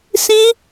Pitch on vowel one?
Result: high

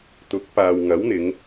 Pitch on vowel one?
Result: rising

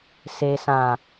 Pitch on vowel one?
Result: low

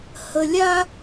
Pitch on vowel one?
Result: high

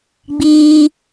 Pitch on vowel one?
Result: high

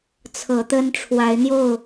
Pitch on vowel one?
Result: rising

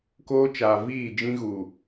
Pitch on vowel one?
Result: high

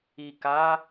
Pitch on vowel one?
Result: low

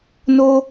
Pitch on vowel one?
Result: high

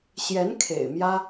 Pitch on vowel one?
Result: rising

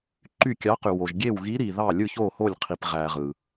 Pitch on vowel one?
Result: falling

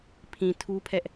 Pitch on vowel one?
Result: low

